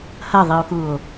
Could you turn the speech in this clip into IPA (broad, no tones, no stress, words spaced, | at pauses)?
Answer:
hɐðˤio̯kuo̯